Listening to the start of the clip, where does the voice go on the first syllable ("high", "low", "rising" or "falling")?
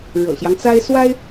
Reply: low